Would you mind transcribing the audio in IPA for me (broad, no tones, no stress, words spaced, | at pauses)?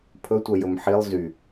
pʰɵtʷœjɵm ħilˠ zy